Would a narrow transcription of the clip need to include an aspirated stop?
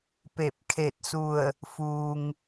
yes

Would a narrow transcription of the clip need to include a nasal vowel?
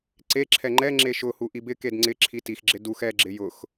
no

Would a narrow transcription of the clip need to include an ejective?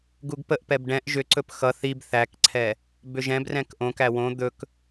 no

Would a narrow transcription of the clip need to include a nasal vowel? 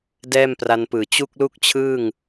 no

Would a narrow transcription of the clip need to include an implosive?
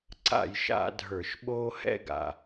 yes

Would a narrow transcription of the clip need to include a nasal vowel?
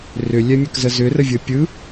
no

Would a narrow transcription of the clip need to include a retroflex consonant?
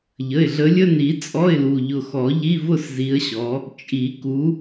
no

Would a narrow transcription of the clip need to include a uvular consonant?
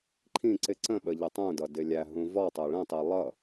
no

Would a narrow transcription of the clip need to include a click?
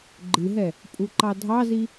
yes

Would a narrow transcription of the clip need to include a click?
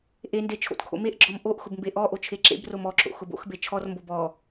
yes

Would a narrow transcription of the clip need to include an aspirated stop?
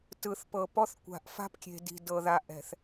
no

